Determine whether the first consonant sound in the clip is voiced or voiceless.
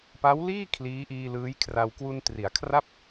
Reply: voiceless